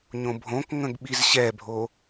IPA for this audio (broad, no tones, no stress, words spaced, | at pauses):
ɲõbʱõkŋə̃ɡ ɓizɕɛbʱo